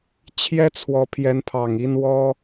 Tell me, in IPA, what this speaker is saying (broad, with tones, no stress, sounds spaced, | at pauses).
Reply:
t͡ɕʰ j ɛ˦ t͡sʰ w ɔ˨˦ pʰ j ɛ˨˦ n pʰ ɑ˨˩ ŋ i˦ n w ɔ˦